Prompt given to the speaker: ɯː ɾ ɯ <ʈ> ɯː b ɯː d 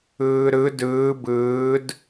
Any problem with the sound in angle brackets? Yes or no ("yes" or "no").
yes